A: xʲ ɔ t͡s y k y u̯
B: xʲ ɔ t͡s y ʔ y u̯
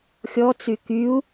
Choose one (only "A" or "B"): A